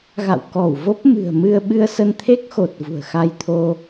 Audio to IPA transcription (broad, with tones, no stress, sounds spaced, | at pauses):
ɣ a̰˧˨ w k ɔ˧˩ w v o˦˥ p̚ m ɨ̤˨˩ ə̯ m ɨ˧ ə̯ ɓ ɨ˧ ə̯ s ə˧ n t̪ʰ e˦˥ k̚ x o˨˩ t̚ v ṳ˨˩ ə̯ x a˧ j t̪ʰ o˧